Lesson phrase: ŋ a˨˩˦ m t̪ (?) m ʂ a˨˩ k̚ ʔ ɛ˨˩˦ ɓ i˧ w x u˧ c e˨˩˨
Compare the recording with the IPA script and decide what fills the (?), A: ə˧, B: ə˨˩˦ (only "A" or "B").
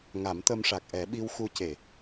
A